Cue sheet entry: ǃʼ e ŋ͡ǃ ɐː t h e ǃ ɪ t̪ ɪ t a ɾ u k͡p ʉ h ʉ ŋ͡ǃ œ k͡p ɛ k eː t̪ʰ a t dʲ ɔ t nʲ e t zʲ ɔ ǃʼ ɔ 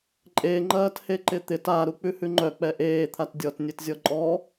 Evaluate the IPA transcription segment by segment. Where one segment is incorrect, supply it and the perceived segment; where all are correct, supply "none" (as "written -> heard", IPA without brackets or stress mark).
k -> ʔ